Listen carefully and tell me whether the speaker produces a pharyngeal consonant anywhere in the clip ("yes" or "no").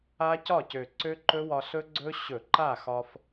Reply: no